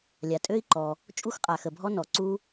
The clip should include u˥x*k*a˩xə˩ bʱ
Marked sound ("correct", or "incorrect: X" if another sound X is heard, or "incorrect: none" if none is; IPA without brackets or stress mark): incorrect: qʼ